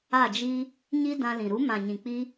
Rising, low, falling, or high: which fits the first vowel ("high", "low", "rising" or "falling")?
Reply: falling